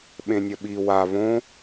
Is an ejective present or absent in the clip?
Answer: absent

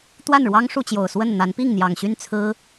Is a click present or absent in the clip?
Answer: absent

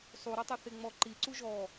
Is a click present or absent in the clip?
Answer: present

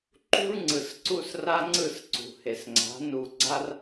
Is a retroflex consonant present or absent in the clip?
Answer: present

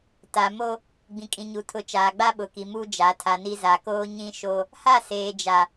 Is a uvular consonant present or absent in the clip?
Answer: absent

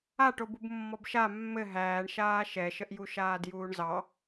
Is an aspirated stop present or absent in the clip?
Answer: absent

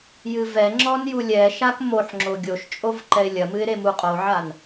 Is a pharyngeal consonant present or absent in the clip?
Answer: present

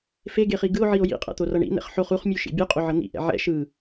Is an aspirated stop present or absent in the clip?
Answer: absent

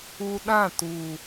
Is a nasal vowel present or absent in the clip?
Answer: present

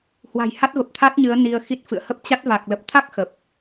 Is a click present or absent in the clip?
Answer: absent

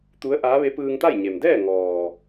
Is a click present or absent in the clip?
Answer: absent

